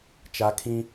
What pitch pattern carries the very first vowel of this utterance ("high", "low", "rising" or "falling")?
high